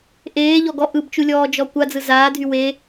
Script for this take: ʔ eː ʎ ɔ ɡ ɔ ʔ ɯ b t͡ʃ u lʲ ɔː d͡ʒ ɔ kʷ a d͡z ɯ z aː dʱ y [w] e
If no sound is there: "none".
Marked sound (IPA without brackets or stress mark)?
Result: w